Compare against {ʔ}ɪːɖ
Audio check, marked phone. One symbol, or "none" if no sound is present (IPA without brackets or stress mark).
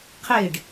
qʰ